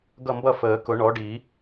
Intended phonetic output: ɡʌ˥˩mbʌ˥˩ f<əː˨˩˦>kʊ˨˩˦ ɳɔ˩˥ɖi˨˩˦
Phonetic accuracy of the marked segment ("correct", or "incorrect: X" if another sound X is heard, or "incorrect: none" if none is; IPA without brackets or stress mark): correct